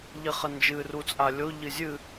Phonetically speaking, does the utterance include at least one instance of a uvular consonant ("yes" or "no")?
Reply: yes